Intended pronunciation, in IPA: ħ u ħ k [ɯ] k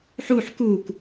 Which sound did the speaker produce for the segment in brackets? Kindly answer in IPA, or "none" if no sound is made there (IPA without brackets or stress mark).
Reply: u